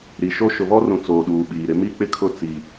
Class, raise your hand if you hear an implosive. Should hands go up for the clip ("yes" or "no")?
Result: yes